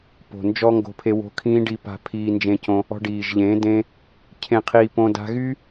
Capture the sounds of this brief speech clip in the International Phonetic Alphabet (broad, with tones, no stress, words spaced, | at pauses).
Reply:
po̤˨nd͡ʒɔ˦ŋɡo̤˧pʰe˧ wo̤˧kʰĩː˦ɖi˧ pa̤˧pʰiː˧nd͡ʒẽ˧cõ˧ | ɔ̤˧ɖiː˨ʒʎẽː˨˦ dẽ˦ | cʰẽ˧qʰiː˧ põː˧da̤˦ ɣy˦